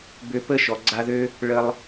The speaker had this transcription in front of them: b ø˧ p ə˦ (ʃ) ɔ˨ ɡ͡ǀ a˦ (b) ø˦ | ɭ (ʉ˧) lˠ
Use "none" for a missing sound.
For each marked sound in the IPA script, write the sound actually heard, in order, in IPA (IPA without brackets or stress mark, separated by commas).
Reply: ʃ, ð, ə˧